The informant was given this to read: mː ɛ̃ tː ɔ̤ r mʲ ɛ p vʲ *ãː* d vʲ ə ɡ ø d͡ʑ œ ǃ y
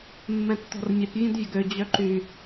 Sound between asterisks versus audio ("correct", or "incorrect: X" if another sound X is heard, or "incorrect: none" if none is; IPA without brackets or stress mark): incorrect: ã